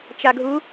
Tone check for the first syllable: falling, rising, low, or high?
low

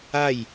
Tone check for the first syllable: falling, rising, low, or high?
falling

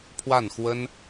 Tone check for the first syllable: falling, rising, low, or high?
falling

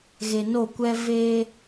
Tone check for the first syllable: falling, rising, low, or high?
low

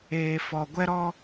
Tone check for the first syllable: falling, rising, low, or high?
low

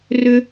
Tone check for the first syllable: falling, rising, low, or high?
high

